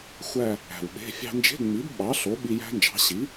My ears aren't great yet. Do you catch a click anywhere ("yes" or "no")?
no